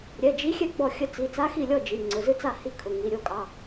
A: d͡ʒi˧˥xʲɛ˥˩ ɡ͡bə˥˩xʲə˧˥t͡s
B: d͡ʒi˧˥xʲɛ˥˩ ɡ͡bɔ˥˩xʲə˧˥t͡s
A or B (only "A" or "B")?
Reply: B